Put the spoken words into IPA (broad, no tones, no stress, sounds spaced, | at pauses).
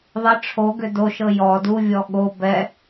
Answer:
ðˤ ʌ ʈ͡ʂʰ o ɡ ʏ d o ʃ ɤ j ɔ d u vʲ ɔ ɠ o b ɛ